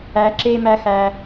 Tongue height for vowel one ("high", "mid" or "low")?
low